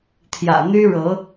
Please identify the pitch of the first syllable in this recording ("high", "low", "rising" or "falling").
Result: low